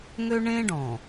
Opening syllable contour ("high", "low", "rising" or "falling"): high